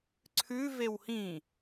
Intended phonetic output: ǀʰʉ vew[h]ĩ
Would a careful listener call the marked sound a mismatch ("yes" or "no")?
no